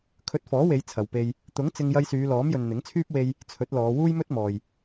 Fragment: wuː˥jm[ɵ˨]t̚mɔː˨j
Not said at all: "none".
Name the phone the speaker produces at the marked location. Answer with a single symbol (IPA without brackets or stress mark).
ɵ˥